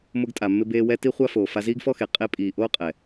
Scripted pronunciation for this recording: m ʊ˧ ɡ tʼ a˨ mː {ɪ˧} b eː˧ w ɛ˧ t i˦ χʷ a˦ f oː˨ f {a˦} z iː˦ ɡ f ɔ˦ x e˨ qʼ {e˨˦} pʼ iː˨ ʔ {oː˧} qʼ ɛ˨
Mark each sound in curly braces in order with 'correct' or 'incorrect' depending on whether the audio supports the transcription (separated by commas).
correct, incorrect, incorrect, incorrect